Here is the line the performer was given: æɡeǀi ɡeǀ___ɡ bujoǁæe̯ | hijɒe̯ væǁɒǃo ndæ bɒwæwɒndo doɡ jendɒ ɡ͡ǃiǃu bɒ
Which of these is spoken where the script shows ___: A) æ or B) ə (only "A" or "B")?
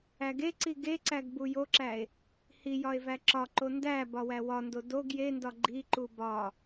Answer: A